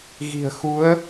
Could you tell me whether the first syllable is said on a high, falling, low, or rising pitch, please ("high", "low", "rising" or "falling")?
low